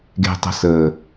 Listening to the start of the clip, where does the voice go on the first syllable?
low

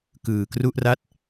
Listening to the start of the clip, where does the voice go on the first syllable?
low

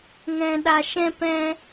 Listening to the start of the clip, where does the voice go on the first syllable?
low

